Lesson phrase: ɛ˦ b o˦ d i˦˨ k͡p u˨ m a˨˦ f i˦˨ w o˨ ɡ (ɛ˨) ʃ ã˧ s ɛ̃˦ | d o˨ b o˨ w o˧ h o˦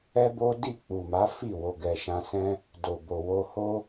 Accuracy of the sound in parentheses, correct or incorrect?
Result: correct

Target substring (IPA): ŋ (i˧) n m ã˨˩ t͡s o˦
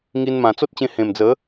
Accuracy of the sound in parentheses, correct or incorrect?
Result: correct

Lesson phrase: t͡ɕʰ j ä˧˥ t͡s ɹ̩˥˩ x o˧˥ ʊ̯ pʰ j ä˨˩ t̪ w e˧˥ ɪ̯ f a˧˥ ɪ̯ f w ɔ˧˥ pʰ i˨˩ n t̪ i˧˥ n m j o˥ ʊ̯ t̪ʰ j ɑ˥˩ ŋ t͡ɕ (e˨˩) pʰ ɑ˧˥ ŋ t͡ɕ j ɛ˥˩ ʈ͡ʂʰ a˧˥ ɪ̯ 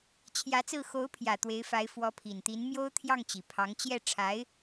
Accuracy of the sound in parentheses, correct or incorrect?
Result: incorrect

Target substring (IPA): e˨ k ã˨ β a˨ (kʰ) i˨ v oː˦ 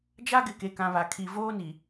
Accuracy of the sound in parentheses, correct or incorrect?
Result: correct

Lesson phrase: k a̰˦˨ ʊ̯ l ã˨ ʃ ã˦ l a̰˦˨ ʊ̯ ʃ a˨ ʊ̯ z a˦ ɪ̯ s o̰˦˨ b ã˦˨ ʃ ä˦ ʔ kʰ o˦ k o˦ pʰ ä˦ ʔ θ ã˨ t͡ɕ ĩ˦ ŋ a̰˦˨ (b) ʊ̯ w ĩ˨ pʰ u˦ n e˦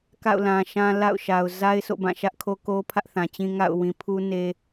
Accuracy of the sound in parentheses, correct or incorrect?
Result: incorrect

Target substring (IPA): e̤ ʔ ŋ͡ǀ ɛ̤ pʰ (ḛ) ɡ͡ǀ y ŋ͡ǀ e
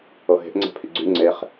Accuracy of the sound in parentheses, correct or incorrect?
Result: incorrect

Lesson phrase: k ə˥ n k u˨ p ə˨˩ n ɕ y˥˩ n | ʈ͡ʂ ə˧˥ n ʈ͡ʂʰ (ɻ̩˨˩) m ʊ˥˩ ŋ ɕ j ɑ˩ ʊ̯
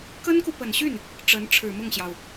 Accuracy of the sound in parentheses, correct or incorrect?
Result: correct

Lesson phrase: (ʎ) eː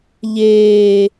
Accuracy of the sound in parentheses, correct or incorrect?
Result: correct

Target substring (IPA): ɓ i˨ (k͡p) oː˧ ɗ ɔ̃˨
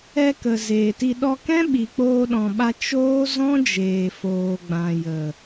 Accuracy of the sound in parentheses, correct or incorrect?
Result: correct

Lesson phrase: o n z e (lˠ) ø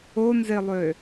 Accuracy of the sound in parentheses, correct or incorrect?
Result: correct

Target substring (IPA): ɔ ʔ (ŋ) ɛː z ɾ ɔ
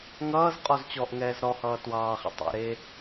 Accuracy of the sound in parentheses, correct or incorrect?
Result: correct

